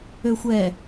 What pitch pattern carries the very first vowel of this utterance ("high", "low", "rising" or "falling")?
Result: low